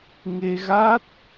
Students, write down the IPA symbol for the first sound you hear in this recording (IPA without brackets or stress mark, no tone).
ŋ